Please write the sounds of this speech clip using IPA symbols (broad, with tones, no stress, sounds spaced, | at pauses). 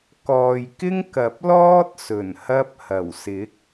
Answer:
k ɔː˨ j k ɪ˥ ŋ k ɐ˨˥ p̚ l ɔː˥ t̚ s ɵ˨˩ n h ɐ˧ p̚ h ɐ˨˩ w s ɪ˨˥ k̚